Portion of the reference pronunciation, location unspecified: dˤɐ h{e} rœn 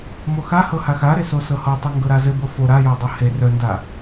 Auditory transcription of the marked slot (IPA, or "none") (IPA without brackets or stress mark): e